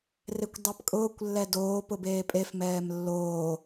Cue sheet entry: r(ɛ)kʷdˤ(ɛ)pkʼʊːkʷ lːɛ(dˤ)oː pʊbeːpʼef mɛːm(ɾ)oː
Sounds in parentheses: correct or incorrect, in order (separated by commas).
incorrect, correct, incorrect, incorrect